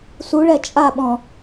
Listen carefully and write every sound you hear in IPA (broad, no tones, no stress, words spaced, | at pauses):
suɭɛ t͡ʃʼaɓɔ̃